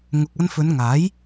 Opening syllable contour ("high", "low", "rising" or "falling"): low